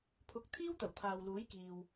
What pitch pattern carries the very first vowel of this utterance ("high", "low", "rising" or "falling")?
low